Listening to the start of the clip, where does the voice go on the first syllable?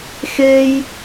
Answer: high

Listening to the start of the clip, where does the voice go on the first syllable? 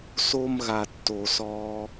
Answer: high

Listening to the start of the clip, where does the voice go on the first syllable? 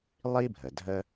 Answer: high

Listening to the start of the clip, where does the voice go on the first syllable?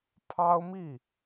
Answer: high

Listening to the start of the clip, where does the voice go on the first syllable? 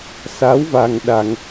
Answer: rising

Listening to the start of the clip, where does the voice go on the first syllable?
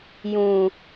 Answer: low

